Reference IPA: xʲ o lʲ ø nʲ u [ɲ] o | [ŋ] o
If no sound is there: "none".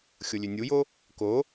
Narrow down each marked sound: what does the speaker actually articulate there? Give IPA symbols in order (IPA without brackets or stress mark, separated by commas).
j, k